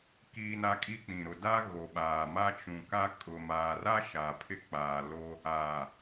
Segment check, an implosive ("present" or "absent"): present